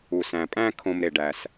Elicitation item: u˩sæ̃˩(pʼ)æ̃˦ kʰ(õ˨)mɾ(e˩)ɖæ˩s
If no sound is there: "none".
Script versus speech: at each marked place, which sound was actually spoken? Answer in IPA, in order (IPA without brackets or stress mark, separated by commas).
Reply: pʼ, õ˨, e˩